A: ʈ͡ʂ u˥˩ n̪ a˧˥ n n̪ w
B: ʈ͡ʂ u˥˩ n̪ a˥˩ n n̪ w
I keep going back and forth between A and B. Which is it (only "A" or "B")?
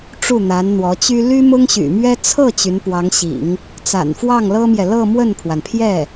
A